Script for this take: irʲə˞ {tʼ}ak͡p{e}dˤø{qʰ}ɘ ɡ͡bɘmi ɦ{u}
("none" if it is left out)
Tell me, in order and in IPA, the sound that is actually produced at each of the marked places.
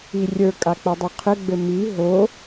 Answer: kʼ, ɛ, qʰ, o

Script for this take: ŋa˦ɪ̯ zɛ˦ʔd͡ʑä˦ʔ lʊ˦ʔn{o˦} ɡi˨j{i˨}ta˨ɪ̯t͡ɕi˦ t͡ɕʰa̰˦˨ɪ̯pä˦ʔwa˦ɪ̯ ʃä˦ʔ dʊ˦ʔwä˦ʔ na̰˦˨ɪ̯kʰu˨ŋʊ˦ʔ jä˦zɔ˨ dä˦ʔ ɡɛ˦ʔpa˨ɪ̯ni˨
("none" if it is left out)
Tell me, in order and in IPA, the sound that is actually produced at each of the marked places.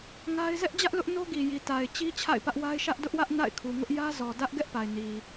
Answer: o˦, i˨

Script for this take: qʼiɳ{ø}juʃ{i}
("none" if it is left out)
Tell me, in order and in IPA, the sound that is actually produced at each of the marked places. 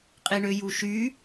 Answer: ø, y

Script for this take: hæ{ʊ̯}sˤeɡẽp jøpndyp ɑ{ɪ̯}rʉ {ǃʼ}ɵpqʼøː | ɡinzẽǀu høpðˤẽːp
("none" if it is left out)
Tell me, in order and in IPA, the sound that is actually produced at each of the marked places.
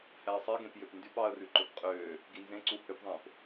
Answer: ə̯, ə̯, ǃ

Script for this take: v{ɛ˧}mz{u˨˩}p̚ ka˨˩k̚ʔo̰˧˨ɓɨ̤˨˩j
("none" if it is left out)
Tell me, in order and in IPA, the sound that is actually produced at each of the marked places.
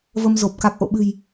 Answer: ə˧, o˨˩

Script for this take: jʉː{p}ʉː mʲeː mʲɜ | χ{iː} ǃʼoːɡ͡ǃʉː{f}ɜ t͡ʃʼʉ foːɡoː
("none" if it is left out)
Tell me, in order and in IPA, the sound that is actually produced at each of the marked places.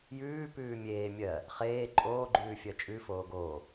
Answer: p, eː, fʲ

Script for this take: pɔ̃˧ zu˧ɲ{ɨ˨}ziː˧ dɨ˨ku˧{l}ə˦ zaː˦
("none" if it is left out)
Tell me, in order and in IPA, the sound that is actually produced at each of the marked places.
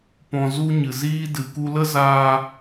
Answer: ɨ˨, l

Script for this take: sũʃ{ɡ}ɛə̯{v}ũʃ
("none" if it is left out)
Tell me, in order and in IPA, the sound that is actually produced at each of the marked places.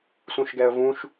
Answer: ɡ, v

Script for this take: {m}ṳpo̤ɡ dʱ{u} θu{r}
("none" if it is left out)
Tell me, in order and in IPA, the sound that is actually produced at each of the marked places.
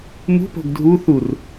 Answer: m, u, r

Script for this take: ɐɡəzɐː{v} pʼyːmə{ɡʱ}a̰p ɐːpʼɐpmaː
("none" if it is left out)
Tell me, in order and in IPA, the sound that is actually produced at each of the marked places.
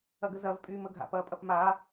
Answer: v, ɡʱ

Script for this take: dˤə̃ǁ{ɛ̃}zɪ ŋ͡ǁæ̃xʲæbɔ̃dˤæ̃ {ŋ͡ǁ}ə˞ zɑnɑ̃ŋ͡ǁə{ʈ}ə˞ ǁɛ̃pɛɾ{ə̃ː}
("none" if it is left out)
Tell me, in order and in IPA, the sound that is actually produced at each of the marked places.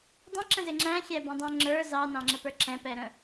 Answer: ə̃, ŋ͡ǁ, p, ə̃

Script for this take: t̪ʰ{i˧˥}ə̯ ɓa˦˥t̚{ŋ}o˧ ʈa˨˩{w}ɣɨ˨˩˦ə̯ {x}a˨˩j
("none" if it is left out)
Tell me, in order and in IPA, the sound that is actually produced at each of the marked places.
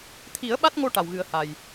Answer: i˨˩˦, ŋ, w, h

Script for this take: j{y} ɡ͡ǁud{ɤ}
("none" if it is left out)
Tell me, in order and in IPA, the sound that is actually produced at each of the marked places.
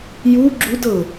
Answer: u, ɤ

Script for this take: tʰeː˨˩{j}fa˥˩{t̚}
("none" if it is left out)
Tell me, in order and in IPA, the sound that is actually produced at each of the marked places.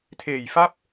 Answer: j, p̚

